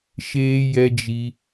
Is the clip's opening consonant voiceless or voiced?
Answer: voiceless